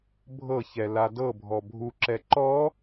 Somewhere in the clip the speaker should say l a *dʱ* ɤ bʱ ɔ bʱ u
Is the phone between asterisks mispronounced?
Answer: yes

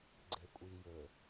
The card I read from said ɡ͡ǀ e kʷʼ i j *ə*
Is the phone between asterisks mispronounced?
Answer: yes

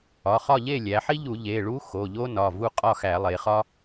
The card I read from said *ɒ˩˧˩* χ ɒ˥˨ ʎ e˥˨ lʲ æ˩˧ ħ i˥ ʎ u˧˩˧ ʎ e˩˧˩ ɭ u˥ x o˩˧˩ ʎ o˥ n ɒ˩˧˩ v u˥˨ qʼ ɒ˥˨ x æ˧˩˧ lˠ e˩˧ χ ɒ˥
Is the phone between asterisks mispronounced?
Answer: no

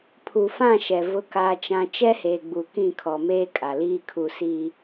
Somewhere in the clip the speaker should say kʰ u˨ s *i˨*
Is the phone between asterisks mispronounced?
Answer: no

